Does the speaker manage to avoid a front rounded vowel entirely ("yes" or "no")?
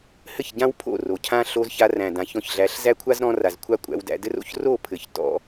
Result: yes